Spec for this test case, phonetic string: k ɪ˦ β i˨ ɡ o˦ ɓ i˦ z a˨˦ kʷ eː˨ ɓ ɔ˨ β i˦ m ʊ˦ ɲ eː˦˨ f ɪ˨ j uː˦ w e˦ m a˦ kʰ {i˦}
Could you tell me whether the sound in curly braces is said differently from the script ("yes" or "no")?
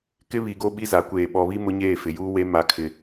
yes